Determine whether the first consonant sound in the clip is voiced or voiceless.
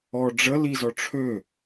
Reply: voiced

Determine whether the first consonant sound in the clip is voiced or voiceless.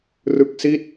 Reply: voiced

